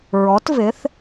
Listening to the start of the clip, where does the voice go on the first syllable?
rising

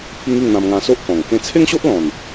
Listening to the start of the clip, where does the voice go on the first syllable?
high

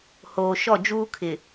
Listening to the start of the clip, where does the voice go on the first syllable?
low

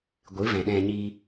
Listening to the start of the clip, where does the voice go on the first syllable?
rising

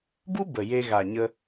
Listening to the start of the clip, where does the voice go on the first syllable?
high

